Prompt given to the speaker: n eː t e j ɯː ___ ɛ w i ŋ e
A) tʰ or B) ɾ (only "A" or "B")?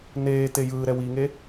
B